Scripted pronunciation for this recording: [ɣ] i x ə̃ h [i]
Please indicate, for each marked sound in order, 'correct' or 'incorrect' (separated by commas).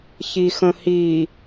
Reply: incorrect, correct